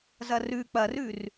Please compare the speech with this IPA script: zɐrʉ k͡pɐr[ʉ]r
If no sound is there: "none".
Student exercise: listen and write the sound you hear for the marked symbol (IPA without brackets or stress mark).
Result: ʉ